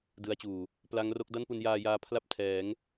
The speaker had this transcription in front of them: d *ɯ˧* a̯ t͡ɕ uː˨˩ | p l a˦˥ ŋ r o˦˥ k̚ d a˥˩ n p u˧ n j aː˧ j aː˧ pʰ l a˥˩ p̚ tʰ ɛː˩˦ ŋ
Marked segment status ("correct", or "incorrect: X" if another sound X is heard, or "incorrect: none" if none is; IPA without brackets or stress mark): incorrect: ɯ˦˥